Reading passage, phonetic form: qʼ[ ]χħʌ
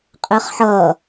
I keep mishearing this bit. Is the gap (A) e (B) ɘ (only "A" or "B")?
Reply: B